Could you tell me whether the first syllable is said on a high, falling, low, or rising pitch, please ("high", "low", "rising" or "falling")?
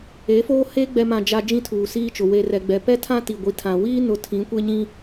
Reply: rising